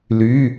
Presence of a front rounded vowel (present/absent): present